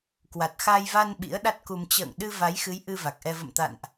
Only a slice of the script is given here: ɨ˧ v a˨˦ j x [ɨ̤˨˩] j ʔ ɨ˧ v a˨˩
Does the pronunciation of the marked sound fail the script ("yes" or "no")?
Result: yes